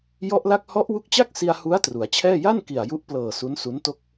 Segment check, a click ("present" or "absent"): absent